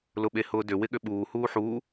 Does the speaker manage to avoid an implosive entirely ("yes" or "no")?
no